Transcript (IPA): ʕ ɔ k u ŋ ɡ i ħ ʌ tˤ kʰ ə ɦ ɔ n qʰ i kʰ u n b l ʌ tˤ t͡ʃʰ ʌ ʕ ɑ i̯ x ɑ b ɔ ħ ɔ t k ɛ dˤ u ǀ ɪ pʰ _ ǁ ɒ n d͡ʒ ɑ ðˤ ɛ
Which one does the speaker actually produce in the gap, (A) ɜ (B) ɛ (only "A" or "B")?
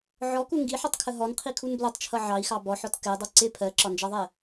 A